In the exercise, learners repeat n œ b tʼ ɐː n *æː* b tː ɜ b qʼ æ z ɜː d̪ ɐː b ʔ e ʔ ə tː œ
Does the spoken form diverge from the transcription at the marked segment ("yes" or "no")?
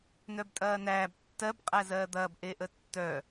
no